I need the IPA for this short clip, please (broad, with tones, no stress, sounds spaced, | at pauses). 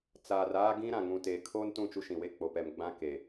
t͡s aː˨ r aː˦ ɡ ĩ˦ ɾ ã˨ ŋ ũ˨ t eː˨ kʰ oː˦ n t ũ˦˨ t͡ʃ u˦ ʃ ĩ˨ w e˦ k͡p o˨ p ɛ˨ m ɡ͡b ã˦ k e˨